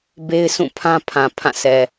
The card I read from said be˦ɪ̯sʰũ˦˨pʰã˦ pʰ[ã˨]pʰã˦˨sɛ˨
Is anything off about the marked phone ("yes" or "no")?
no